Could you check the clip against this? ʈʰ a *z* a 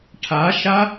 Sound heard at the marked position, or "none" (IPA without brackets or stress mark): ʃ